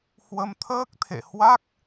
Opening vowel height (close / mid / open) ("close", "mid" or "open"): mid